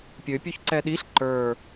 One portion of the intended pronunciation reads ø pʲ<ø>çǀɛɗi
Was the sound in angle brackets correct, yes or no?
yes